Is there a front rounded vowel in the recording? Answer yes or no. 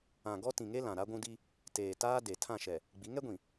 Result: no